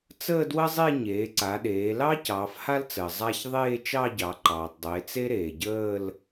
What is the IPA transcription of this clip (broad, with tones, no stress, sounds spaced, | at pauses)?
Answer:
t͡s əː˥˧ d w ə˥ zˤ e˥˧ ɲ eː˩˧ ǀ a˩˧ ɗ eː˩˧ l ɑ˥ c ɑː˩˧ f h a˥ l t͡s əː˩ zˤ a˥˧ ç ðˤ eː˥˧ t͡ʃ ɑ˥˧ ɟ ɑ˩˧ ǃ ɑː˩ tˤ dˤ eː˩˧ t͡s e˥ ɾ eː˩ ɟ əː˥˧ l